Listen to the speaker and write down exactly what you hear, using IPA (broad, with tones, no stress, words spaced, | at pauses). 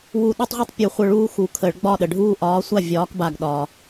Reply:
wu˧˩ɗɔ˦tˤʁʷi˦tˤ pʲu˨˩˦χʷə˧˩ ɭuː˦xu˨˩˦kʰə˨˩˦ɭɡ͡bɒ˥˩ ɗə˩ ɖʱuː˦ʔɒː˨˥ sʷa˥˩vʲɒː˨˥kba˧˩ɡ ɗɒː˩